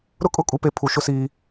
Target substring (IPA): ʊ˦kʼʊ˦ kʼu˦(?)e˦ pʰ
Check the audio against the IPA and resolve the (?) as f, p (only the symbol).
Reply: p